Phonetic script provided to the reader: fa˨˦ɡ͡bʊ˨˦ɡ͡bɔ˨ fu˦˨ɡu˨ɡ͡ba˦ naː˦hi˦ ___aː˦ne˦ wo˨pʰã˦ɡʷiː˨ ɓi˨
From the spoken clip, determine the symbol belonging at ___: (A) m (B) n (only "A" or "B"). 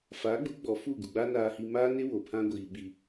A